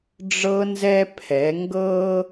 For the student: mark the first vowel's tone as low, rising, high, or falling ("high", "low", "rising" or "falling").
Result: high